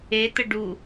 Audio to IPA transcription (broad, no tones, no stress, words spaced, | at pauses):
et̪ə ɖu